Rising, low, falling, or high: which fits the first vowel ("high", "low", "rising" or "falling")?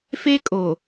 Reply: high